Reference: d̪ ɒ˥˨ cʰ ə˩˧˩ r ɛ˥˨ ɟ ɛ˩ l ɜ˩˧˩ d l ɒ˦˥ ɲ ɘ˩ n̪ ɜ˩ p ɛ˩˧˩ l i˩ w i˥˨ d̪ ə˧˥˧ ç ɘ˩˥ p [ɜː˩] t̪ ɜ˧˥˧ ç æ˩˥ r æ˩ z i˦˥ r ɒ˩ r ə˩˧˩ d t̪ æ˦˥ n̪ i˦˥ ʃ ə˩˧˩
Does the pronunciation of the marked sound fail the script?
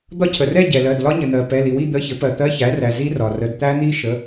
yes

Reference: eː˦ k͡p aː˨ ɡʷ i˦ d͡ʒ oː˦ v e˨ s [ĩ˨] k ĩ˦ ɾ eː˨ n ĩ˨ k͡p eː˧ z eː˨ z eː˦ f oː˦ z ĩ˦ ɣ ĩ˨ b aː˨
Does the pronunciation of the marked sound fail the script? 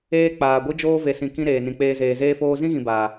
no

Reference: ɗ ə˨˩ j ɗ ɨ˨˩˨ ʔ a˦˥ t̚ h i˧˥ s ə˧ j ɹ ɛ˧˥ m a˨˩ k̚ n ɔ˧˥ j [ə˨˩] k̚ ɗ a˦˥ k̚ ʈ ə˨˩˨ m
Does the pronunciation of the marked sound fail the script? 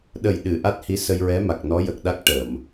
no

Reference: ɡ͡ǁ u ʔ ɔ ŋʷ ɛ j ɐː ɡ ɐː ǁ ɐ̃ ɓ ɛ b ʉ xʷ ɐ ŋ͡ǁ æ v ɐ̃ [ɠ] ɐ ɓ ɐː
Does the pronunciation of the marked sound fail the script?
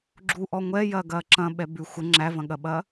no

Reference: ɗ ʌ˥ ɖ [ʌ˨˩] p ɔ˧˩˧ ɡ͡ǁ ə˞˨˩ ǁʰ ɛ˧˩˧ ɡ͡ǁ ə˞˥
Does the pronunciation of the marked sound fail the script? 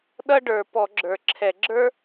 yes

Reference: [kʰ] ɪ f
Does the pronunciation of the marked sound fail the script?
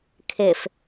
no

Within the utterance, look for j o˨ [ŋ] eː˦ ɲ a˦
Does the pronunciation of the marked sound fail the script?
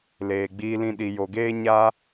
yes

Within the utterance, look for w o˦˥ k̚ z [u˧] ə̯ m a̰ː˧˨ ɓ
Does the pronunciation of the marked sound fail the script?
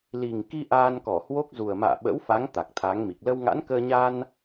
yes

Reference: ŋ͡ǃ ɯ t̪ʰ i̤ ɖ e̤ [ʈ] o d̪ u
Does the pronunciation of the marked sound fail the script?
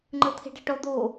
no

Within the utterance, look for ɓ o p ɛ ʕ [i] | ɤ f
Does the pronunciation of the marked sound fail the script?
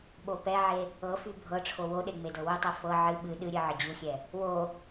yes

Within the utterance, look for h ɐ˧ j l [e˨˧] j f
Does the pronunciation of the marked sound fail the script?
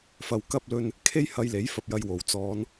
yes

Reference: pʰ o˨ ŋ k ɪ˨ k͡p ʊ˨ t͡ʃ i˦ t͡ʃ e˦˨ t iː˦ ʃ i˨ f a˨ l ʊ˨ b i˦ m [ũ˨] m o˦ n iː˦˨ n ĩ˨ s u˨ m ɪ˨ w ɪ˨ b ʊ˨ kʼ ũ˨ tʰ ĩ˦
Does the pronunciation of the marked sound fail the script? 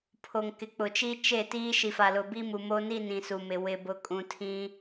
yes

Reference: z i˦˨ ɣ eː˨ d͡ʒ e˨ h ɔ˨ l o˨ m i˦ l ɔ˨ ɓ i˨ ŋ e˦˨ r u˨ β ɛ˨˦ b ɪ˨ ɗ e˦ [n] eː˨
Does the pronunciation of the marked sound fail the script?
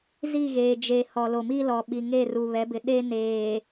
no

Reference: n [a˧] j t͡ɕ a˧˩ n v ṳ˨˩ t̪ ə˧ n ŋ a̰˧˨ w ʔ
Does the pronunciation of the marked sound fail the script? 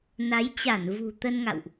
yes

